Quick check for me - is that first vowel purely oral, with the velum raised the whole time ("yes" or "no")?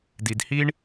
yes